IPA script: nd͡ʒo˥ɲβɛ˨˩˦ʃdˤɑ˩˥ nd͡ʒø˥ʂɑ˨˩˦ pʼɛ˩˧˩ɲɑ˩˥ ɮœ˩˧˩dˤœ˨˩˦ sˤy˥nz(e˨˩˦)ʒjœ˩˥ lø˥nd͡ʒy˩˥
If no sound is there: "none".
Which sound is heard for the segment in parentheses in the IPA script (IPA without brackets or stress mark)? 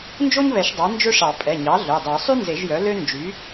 e˨˩˦